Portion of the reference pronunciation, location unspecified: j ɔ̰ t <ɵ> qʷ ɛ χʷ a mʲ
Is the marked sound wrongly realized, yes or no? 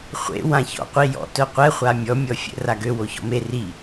yes